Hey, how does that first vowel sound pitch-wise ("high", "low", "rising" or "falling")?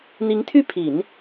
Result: rising